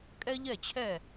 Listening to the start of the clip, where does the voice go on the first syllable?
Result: high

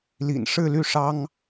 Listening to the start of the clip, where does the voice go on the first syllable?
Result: low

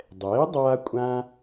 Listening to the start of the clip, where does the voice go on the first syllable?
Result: rising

